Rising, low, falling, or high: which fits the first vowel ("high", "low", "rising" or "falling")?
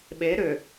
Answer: rising